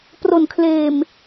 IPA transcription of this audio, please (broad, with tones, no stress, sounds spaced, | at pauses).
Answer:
p r o˨˩ n kʰ l eː˨˩ m